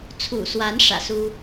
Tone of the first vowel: low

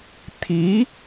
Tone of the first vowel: rising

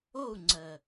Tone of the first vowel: falling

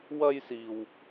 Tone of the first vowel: high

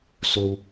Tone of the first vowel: high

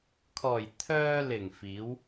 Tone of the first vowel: low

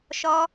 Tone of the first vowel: high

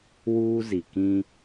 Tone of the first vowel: high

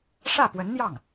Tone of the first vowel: falling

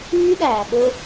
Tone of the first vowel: high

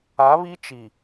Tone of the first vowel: rising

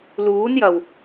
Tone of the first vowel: rising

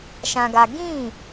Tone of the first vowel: high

